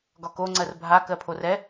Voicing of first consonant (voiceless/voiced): voiced